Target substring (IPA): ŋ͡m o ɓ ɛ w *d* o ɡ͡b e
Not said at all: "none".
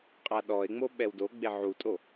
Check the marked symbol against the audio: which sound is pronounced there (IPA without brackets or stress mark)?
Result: d